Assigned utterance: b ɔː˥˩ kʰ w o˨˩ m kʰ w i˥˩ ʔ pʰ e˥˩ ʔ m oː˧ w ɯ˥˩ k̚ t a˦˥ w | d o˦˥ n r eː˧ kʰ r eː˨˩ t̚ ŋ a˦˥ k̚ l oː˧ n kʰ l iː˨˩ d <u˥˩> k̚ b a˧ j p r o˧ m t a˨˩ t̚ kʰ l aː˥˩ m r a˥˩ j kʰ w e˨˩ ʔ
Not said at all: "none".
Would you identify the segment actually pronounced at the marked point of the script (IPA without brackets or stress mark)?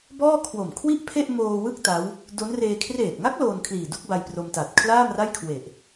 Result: u˥˩